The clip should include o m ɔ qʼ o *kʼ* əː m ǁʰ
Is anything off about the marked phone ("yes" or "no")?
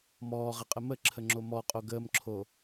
yes